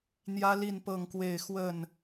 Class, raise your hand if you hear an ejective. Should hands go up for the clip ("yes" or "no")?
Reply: no